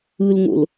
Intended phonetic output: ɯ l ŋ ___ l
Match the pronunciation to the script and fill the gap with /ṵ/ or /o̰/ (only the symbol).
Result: o̰